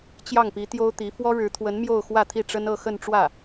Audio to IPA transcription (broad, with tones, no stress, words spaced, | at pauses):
t͡ɕjɑ˥˩ŋpi˧˥ t̪jo˥ʊ̯t̪i˧˥ fwɔ˥ɻɻ̩˧˥t̪ʰwə˧˥n mjo˥˧ʊ̯xwä˥˧ t̪ʰi˥˩ʈ͡ʂə˥nɤ˥˧ xə˥˧nʈ͡ʂwä˥˩